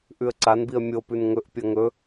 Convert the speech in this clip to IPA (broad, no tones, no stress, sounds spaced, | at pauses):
ʔ ʉ ə̯ ǀ a n b i ə̯ mʲ o p ʉ n ŋ ɵ ʔ pʲ ɐ ŋ ɵ